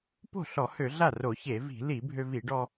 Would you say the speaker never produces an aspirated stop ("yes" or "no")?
yes